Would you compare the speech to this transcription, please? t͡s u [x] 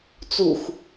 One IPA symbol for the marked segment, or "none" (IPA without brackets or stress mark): x